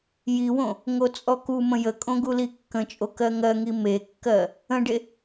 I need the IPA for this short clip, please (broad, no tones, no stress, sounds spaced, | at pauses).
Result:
j i w õ | ŋ o t͡sʼ ɔ k u m ə̃ j ə kʼ õ ɡ u l i kː ə̃ t͡ʃʼ o k ɜ ŋ ɜ ŋ i m e kː ɜ | ə̃ ɖ e